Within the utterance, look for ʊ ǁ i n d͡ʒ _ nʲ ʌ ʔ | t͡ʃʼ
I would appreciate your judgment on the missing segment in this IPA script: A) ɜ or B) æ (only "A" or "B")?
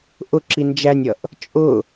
B